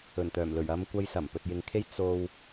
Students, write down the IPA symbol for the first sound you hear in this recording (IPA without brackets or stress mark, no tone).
ɵ